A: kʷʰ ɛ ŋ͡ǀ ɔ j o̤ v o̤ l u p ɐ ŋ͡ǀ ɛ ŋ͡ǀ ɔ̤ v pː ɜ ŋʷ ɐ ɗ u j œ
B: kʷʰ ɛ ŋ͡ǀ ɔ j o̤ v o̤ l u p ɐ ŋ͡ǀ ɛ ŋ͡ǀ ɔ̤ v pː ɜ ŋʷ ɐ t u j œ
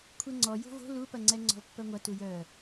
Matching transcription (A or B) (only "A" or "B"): B